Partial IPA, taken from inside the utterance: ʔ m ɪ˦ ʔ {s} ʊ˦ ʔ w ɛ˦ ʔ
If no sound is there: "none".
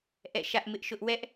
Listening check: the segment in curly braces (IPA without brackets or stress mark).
ʃ